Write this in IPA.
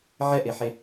ʕ ɛ ʔ e ħ e

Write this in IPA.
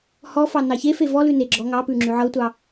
h ɔ f ɑ n ɑ ç e f e v ɔ l ʉ n e ɡ͡ǁ ɔ ŋ ɑ p ʉ ŋ͡ǁ ʉ ʕ ɤ tʷ ɑ

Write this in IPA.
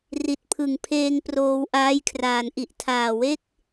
r i˨˩ t̚ pʰ ɯ˨˩ ŋ pʰ eː˧ ŋ p r oː˧ w ʔ aː˦˥ j kʰ r aː˩˦ n ʔ i˨˩ ʔ tʰ aː˨˩ w e˥˩ k̚

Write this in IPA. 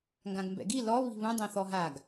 ŋ ɡ ã ɡ m b ɛ̰ ɡ i l ɔ β i̤ β ũ dˤ ẽ θ ɔ ɦ a ɡ

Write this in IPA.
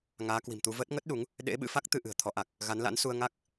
ŋ aː˨˦ k w i̤˨˩ m t̪ u˧ v əː˦˥ t̚ ŋ ə˦˥ t̚ ɗ u˨˦ ŋ | ɗ ḛ˧˥ ɓ ɨ̰˧˥ f a˦˥ k̚ t̪ ɨ˧ ʔ ɨ̤˨˩ ə̯ t̪ʰ ɔ˨˦ ʔ a˨˩ k̚ | ɣ a˨˦ n l a̰˧˥ n s u˧ ə̯ ŋ a˦˥ k̚

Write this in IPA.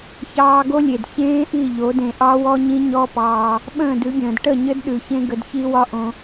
ç ɑː˧ ɡ o˦ lʲ e˨ d ç ẽː˦ ʔ i˦˨ ʎ o˨˦ d ẽ˧ ʔ ɑ˦ w ɔ˦ ɲ ĩ˦ ɲ ɔ˦ p ɑː˧ | ɓ ə̃ː˦˨ d ʉ˨˦ ɡʲ ə̃ː˨ d ʈ ə˦˨ ɲ ɘ˦ d ɗ ʉ˨ ç ẽ˦ ɡ ə˧ d ç i˦ w ɒ˦ ʔ õ˧

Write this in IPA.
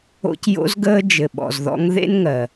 o̰˧ c j o̰˧ z ɡ əː˧ d͡ʒ ɘ˩ ɓ ɔ̰˩ z ð ɔ̰˧ ŋ ð ḛ˥ n ŋ ɜ˩

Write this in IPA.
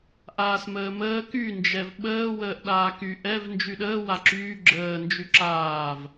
ʔ aː s m əː m əː k y n d͡ʒ ɛ v ɓ əː w əː ʔ ɗ aː k y ʔ ɛ v n d͡ʒ y ɗ əː w a ǁ yː ɡ͡ǁ əː n d͡ʒ y ǁ aː v

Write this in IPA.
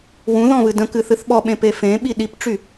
w ũ ð ɔ̃ β ɨ d ə̃ k ɨ θ ɨ θ ɓ ɔ ɓ ẽ p e f ẽ ɓ i ɗ i p ʈ͡ʂ y

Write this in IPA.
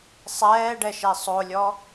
sˤ ɛː ɖ ɛ ʃ ɛ sˤ o lʲ ɔ

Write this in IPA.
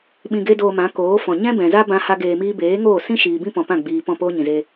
ɓ ĩ˧ ɡ e˦ d oː˧ m ã˨˦ k oː˨˦ f ɔ̃˨ ɲ ɛ̃˦ b ɛ̃˨ z a˦ b ã˦ h a˦ ɡ eː˧ m iː˦ b eː˨˦ ŋ oː˦˨ s ĩ˦ ʃ iː˨ b ĩ˦ p ɔ̃˨ p ã˦˨ ɡ͡b iː˨ p ɔ̃˦˨ p oː˦ ɲ ĩ˨ z e˧

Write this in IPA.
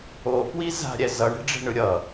o p w i z a̤ ɾʲ ɛ z ʌ ɳ e̤ ɖ͡ʐ e̤ ɳ ɯ ɾʲ ʌ

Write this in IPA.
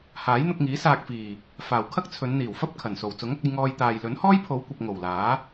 h aː˨˥ j n̪ ʊ˧ k̚ ŋ iː˨˥ s aː˨ k̚ f iː˨˩ | f aː˨˩ w kʰ ɐ˥ k̚ t͡sʰ ɵ˨˧ n n̪ iː˨˩ w f ɐ˥ p̚ kʰ ɐ˨˩ n s o˨˩ w t͡s ʊ˨˥ ŋ ɐ˧ k̚ ɐ˧ j ŋ ɔː˧ j t̪ aː˨ j l ɵ˨˥ n h ɔː˥ j pʰ o˨˧ w kʷ ɐ˨ p̚ ŋ o˨˩ w l aː˨˥

